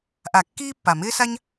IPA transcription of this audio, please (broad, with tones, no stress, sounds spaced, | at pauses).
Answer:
ʔ a˧˩˧ kː iː˥ pː a˨˩ m ɪː˥ s a˥ ɲ